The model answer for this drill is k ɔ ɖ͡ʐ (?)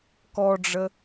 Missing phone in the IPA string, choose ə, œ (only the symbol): ə